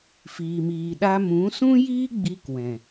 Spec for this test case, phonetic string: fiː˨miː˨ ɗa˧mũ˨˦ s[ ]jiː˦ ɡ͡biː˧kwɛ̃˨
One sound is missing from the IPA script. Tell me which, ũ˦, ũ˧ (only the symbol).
ũ˦